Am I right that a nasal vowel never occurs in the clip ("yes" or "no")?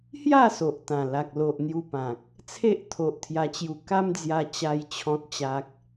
no